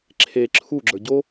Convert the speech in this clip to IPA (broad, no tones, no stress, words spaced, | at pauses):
ǁʰe ǁʰu ɡ͡ǁə˞ɟo